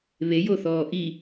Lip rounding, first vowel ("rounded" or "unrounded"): unrounded